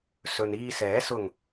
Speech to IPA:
sɵ˨niː˧sɛː˨˥ sʊ˨˩ŋ

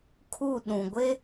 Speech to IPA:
kʰu˦˨ɗũ˨ ɡʷe˦

